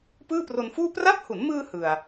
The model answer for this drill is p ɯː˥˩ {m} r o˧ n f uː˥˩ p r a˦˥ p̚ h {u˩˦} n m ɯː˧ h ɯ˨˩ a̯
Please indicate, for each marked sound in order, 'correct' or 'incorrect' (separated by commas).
incorrect, correct